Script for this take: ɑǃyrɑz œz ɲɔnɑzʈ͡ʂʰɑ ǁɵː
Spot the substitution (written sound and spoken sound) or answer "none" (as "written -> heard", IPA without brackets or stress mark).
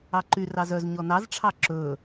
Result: none